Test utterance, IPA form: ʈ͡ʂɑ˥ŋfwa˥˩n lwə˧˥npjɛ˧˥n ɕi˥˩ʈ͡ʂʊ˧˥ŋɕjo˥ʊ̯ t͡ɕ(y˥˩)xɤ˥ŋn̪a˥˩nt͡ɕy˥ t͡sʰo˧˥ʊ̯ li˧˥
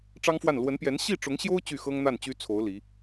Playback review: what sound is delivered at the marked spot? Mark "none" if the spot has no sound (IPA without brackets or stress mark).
y˥˩